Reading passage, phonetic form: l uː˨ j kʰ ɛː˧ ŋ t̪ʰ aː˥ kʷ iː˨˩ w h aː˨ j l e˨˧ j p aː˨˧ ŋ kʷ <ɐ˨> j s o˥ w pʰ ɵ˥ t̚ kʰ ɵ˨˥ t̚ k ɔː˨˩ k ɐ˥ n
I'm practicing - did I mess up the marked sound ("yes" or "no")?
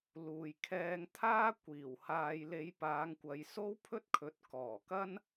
no